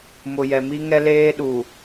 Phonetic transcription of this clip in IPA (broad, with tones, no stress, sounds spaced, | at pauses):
m ʊ˨ j ɛ˨ m i˦ ŋ ɛ˦ l eː˦ ɗ u˨